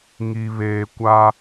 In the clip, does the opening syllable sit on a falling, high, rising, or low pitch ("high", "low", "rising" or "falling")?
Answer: low